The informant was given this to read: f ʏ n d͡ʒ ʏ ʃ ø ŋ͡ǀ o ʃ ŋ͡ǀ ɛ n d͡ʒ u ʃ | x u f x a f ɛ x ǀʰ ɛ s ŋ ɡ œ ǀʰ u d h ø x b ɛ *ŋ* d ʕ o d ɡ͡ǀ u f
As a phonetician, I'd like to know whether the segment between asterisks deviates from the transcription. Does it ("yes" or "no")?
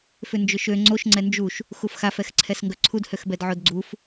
yes